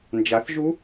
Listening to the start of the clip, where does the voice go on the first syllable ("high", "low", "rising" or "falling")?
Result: rising